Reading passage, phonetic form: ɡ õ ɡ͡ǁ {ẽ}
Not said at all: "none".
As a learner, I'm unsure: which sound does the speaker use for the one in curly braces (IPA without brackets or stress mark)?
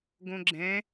ɛ̃